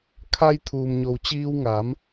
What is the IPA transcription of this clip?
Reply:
kʰa˧j t̪ʰuː˩mɲo˩w t͡ɕiː˧wŋaː˩˧m

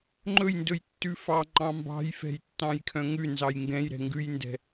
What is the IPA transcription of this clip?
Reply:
ŋ͡ǃɵjndɵjtːʉfɑ ŋ͡ǃɑ̃mbɑ̤jfɛ̤jtːɑ̃j kʰœ̃ŋʉ nzɑjŋɡɛ̃jɾɛ̤ ŋɡʉjndɛ̤

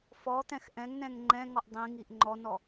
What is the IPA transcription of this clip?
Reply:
fɔt̪ɛ̃x ʔɛ̃ŋnɛ̃ŋ ŋ͡ǃɛ̃ŋɔʔ dˤĩŋiʔ ŋ͡ǃɔnɔ

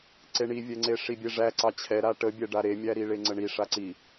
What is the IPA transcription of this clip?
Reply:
ǀeɳivʲɛŋ͡ǀe ʂibʲeʐæǀɑ t͡ɕʰɛ ɾaʈəbʲɛ ɖaɾemʲæ ɾiɭeŋ͡ǀəɳi ʂaǀi

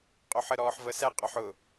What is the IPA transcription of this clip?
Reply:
qʼoħəɾɔːħvə sɛ qʼɔħʊ

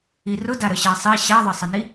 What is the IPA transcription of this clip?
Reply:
irʊ daɾəɕasˤi ɕaðˤəsˤəni

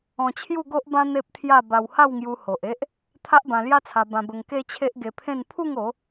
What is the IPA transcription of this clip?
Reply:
ɔ̃˧t͡ɕʰju˥˧ɡo˦ʔbã˦ n̪e˦p̚t̪ʰja˥˧ ba˧wha˥˧wŋju˧ ho˨ʔe˦ʔ | t̪ʰa˦ʔbã˧lja˦t͡sʰa˧ bã˧bə˧ŋ ke˦t͡ɕʰe˦ʔɡe˧pʰẽ˥˧n pʰu˥˧ŋo˨˦

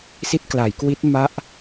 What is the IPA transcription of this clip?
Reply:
si˦˥t̚kla˩˦jkwi˦˥t̚ ma˦˥ʔ

